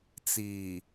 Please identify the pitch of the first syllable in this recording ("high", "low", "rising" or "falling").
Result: low